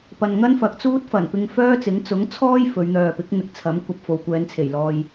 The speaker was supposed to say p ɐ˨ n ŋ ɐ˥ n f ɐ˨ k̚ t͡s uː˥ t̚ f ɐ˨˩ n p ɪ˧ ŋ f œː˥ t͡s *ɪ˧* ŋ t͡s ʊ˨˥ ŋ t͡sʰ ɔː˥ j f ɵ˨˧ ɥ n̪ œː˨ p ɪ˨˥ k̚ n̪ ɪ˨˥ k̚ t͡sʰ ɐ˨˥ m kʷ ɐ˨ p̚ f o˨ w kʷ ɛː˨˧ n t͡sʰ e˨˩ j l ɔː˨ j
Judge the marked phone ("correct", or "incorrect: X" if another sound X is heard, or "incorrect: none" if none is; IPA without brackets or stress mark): incorrect: ɪ˨˥